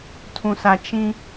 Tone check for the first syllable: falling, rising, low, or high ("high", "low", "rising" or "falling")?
low